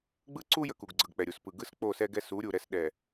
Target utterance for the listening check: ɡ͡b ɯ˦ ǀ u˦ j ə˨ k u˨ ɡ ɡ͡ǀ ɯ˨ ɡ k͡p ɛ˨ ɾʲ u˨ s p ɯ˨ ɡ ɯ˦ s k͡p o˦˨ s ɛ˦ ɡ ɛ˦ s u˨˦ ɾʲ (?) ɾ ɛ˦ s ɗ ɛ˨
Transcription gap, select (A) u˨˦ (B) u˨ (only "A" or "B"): B